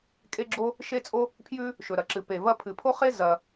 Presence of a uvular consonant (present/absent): present